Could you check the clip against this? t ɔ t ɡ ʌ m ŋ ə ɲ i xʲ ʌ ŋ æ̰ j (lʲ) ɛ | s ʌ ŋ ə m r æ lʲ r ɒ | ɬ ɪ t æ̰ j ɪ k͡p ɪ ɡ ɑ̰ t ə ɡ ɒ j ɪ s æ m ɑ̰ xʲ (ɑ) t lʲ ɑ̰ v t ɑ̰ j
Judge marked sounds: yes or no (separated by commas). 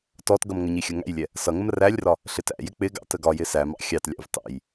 yes, yes